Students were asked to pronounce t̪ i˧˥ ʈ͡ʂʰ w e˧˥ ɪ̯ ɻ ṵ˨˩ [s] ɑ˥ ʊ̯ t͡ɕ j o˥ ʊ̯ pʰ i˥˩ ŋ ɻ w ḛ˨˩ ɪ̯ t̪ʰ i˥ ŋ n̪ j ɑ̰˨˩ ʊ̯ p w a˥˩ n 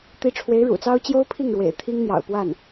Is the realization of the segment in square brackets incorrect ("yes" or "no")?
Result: yes